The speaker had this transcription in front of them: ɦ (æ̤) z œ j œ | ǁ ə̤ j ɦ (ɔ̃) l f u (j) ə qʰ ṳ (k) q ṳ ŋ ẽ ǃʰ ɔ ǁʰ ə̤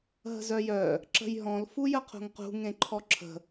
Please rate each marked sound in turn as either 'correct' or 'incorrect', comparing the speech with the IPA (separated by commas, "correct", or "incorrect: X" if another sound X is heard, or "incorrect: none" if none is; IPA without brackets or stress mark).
incorrect: ə̤, correct, correct, incorrect: ŋ